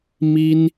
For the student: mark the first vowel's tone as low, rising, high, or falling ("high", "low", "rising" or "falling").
high